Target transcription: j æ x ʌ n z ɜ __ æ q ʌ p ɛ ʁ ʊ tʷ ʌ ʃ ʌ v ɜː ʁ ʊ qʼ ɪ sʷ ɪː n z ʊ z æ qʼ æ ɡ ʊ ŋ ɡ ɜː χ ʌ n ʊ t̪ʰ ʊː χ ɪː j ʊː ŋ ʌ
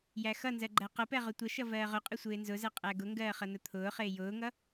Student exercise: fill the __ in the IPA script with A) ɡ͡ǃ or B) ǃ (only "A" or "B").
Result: A